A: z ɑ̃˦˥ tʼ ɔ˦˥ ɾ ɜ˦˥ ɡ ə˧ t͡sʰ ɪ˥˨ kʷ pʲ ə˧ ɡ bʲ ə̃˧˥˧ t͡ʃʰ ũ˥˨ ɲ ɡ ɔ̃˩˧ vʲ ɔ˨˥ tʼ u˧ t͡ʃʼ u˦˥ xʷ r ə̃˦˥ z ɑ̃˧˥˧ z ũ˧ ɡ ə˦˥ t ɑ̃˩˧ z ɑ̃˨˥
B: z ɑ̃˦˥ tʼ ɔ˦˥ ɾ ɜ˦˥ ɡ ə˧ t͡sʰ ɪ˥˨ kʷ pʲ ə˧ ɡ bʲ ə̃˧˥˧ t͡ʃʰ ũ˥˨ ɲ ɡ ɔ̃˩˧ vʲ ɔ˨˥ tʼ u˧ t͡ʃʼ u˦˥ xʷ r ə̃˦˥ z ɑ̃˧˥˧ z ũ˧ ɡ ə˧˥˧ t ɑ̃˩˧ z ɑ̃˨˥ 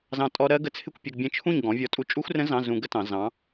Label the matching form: A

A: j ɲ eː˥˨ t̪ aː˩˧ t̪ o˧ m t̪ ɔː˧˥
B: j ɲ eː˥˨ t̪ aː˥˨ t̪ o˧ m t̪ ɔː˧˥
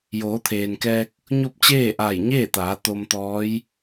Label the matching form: A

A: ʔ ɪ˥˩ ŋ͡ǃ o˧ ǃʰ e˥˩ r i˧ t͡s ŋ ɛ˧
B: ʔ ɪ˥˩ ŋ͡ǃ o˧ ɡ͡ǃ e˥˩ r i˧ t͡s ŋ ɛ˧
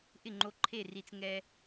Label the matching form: A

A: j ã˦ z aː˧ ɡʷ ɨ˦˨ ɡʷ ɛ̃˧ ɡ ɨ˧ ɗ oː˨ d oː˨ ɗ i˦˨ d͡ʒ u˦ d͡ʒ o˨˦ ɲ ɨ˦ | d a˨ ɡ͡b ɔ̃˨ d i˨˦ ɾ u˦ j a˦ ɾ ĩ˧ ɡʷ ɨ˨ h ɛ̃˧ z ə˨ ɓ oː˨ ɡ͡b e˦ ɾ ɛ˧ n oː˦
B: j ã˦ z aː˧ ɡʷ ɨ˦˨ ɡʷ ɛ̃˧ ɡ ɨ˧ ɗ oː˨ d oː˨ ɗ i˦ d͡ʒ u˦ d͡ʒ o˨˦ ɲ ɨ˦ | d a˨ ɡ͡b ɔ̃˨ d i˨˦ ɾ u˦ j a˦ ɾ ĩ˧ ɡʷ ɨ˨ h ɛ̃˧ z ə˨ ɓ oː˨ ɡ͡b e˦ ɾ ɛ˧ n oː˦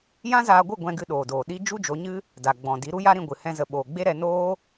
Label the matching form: B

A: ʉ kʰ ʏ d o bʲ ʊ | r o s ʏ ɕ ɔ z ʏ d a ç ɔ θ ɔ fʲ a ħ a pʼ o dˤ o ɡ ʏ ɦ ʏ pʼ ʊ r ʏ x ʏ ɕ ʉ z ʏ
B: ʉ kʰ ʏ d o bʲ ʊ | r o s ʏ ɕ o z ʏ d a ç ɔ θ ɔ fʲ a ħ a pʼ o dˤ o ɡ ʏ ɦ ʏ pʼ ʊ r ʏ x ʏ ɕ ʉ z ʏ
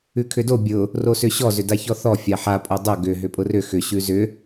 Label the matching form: A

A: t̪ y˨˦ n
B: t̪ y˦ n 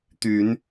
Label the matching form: A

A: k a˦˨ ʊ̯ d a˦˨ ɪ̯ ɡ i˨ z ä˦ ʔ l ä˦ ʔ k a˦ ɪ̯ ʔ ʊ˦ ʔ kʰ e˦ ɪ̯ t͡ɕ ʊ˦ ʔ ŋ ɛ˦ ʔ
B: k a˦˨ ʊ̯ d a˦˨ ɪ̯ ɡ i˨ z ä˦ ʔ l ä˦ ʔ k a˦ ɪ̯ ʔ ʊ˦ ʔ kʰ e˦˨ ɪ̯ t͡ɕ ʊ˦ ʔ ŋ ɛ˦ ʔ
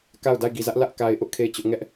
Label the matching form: B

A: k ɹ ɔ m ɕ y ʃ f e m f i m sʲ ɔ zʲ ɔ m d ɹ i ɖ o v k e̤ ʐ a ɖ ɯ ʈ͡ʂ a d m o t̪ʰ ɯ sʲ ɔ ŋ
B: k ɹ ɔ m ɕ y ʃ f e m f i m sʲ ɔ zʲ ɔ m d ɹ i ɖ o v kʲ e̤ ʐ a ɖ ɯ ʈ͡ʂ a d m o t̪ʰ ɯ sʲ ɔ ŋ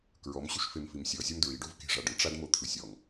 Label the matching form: A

